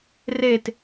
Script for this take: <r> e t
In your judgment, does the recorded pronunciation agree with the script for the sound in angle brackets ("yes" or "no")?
yes